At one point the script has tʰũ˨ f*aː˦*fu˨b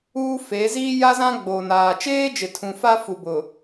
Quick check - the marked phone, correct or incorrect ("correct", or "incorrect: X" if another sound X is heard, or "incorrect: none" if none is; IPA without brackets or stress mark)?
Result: incorrect: a˦